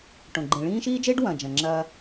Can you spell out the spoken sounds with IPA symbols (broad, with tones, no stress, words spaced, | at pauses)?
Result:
ʈõ˨ɡ͡ǃĩ˨ɭĩː˦ ʃiː˦d͡ʒeː˦ɖ wɐ̃˨d͡ʒɐ̃˨ŋ͡ǁɐː˦